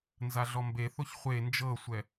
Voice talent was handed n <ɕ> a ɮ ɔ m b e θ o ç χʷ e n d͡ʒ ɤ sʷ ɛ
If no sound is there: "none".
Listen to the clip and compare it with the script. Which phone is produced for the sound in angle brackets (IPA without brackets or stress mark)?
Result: z